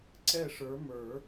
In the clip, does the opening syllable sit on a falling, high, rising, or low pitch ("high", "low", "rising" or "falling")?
falling